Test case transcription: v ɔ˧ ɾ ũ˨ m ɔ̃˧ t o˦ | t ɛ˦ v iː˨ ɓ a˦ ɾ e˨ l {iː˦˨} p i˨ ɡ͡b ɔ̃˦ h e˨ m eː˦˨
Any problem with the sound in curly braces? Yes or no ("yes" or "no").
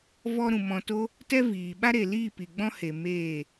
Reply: no